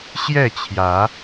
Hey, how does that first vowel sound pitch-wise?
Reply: falling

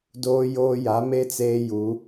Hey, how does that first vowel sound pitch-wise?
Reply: high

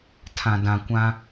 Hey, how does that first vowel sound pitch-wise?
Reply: low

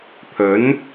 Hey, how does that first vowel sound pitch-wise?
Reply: rising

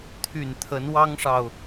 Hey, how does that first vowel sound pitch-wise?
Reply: low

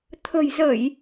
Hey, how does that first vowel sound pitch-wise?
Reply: low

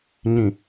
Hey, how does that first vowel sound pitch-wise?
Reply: low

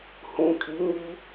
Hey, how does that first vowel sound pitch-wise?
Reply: low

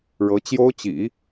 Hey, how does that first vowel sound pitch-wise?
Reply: rising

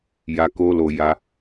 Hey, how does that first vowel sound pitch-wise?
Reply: low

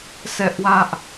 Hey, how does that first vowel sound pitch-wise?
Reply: high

